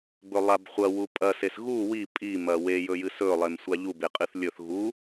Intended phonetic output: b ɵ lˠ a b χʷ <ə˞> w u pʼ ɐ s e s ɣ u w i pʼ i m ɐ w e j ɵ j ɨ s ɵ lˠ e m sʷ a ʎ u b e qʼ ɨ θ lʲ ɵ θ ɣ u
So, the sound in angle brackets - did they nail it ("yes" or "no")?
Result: no